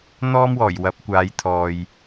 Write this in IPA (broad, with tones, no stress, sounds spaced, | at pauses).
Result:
n̪ ɔː˥ m w ɔː˨˩ j w ɐ˨˥ p̚ kʷ aː˨˧ j t̪ʰ ɔː˨ j